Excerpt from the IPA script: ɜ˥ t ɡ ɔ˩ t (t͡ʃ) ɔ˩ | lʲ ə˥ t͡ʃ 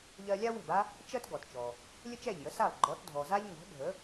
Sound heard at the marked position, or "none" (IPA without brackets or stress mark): t͡ʃ